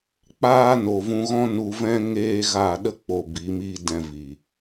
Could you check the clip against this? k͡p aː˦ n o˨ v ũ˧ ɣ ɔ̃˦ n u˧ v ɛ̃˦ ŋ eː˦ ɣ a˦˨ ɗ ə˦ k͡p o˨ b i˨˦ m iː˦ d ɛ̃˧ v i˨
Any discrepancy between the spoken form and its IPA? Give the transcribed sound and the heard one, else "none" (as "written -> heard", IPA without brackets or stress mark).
none